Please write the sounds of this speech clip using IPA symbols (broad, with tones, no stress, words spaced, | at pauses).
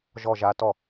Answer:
ʒɔ˥˧ʒa˦˥tɔ˥˩